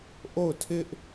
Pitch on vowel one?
falling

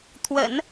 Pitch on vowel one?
low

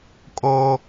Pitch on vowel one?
high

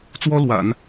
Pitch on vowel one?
high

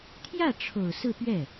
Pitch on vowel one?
falling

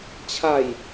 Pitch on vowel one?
falling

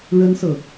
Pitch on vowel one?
high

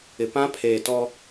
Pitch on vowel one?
low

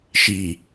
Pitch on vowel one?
low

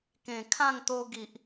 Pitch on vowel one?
low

